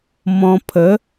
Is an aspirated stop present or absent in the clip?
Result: present